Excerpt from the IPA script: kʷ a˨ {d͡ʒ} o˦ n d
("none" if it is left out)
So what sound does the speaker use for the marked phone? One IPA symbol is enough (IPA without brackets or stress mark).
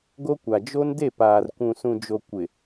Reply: d͡ʒ